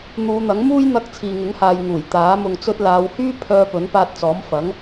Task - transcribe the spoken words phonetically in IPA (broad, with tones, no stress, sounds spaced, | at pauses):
n̪ uː˨˧ n̪ ɐ˨˥ ŋ m uː˥ j n̪ ɐ˧ k̚ t͡sʰ iː˨ ŋ ɪ˨˥ ŋ h aː˨ j ŋ uː˨˩ j t̪ aː˨˥ m ʊ˨ ŋ t͡s ɵ˧ t̚ l aː˨˧ w h yː˥ pʰ œː˧ p ɵ˨˥ n p aː˧ t̚ t͡s ɔː˨˥ m f ɐ˨˥ ŋ